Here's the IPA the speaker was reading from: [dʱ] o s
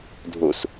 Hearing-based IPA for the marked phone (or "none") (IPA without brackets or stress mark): dʱ